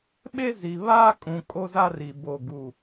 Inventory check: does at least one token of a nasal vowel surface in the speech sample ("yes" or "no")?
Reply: yes